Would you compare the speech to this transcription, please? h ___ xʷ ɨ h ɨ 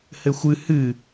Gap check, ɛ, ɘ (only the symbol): ɘ